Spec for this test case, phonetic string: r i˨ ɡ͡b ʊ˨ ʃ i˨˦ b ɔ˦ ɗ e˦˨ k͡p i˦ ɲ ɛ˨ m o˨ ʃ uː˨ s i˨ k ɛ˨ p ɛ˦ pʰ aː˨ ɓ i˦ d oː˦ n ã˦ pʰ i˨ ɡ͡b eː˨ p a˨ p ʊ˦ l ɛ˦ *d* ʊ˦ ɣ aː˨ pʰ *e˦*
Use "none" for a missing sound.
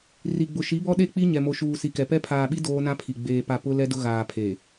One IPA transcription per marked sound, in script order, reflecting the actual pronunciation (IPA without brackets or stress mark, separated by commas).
d, e˨